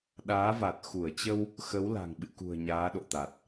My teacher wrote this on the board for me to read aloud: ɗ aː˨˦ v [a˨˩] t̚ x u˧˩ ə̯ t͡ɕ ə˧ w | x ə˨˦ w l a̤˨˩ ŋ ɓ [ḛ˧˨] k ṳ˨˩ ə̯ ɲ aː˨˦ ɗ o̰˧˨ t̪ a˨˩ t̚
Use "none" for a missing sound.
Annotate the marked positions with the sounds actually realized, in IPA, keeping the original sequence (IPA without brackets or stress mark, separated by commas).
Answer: a˨˩, ɨ̰˧˨